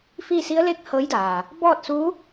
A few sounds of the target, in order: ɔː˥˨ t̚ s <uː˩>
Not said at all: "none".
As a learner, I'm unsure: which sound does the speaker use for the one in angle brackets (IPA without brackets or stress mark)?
uː˧˥